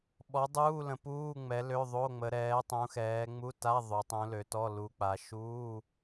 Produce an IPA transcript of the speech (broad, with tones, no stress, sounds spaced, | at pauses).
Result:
ɓ ɔ˨˦ dˤ uː˧˥˧ l ə̃˨˦ p uː˧˥˧ ŋ͡m ɛ˨˦ l ø˧˥˧ ðˤ o˧˥˧ ŋ͡m ə˨˦ ɾ ɛː˨˦ tˤ ũ˨˦ x ɛː˨˦ ŋ͡m u˧˥˧ t a˧˥˧ ðˤ ø˨˦ tˤ ũ˨˦ l ø˨˦ t ɔ˧˥˧ l u˨˦ k͡p a˨˦ ʃ uː˧˥˧